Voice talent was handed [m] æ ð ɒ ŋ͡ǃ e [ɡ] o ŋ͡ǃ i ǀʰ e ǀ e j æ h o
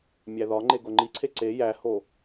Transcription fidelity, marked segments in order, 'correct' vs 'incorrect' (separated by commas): incorrect, correct